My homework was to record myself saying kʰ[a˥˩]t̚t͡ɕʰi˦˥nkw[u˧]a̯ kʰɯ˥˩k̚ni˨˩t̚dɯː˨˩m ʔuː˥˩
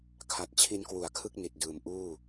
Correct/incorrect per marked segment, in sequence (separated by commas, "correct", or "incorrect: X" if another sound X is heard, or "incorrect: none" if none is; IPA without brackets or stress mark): incorrect: a˨˩, incorrect: u˩˦